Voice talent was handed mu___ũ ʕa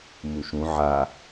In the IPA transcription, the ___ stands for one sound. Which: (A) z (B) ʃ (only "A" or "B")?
B